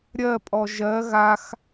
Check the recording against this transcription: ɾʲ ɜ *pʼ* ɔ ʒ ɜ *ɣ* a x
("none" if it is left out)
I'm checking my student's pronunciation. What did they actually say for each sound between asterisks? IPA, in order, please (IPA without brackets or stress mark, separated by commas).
pʼ, ɣ